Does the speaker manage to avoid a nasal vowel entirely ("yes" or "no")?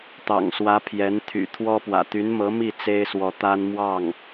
yes